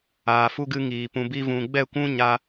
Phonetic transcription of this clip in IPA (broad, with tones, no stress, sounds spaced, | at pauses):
aː˨ f u˧ ɡ ɨ˧ ŋ iː˨ p ũ˨ b i˧ v ũ˨ ɡ͡b ɛ˦˨ kʷ ũ˦ ɲ a˧